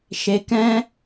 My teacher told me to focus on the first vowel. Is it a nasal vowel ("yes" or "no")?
no